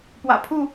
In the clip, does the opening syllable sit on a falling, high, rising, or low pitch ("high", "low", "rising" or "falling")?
low